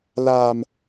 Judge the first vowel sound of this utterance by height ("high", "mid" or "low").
low